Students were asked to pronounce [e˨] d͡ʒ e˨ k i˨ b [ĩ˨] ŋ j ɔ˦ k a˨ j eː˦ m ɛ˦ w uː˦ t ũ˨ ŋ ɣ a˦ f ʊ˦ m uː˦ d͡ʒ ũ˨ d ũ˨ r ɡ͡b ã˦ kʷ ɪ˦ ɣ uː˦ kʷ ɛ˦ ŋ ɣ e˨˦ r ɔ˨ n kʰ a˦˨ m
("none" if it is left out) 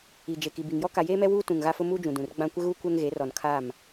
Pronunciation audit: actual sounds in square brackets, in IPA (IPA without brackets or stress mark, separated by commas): i˨, i˨